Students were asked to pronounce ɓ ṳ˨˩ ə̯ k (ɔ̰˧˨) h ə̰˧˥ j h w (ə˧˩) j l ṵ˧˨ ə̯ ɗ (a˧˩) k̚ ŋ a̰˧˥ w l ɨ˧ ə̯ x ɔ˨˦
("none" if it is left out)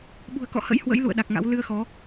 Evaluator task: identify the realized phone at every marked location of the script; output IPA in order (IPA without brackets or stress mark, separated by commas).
ɔ̰˧˨, ə̰˧˥, a˨˩